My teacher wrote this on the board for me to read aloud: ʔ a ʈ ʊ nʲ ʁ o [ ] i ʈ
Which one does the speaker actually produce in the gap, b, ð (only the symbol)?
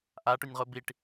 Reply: b